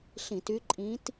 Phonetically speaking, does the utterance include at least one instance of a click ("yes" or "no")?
yes